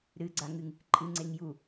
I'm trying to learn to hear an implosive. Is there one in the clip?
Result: no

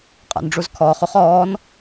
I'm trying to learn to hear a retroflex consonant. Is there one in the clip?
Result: yes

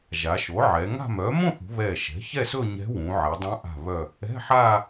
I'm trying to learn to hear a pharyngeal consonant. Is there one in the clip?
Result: yes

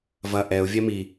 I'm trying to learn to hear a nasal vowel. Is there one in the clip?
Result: no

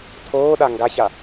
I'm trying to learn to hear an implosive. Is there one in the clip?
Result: yes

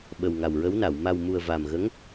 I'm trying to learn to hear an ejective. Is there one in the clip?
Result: no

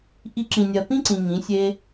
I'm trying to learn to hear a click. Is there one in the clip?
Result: yes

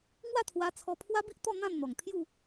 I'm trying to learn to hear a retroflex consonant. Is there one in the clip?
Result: no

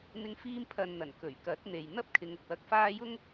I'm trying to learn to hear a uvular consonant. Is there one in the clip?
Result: no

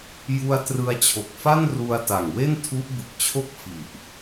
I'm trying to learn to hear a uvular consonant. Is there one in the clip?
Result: no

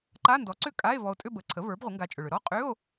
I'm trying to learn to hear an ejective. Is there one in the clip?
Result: yes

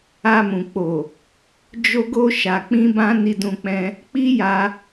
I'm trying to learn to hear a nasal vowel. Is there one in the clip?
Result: yes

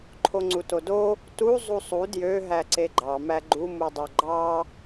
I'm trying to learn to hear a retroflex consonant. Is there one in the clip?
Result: no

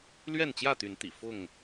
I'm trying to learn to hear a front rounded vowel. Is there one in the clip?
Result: yes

